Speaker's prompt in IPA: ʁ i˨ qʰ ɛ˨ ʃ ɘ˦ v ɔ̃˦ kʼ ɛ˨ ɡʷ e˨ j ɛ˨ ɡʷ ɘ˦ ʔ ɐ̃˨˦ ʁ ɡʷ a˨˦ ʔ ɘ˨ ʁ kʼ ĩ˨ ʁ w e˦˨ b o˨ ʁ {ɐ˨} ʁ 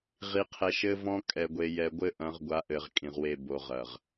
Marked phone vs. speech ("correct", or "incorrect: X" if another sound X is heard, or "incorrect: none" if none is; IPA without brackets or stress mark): correct